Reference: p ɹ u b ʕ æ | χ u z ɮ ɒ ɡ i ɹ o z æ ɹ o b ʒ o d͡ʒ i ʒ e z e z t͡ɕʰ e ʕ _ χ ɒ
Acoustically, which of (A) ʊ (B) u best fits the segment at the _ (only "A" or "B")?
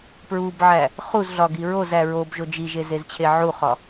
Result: B